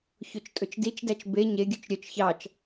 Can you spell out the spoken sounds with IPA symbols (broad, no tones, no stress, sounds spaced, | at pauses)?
ç o t͡ʃ tʼ ɵ t͡ʃ d i t͡ʃ d æ t͡ʃ b e ɲ e ɡʲ ʉ t͡ʃ ɾʲ œ t͡ʃ ç ɑ t͡ʃ